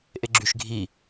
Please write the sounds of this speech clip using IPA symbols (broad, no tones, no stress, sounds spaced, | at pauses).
ʔ e ɡ͡ǁ y ʃ ɡʱ i